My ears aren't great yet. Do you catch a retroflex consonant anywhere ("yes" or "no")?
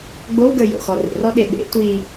no